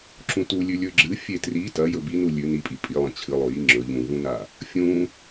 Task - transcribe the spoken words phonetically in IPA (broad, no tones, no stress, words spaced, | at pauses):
ǁũtulʲʉ lʲɵɡ͡ǁɨ fʲetri tɐ jɵbinu lʲʉ nipʼi pʼilˠɐ̃ t͡ɕʰɨ lˠojiŋ͡ǁɵ ʎũvũna | fʲũ